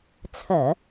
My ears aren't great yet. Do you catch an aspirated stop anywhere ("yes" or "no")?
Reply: yes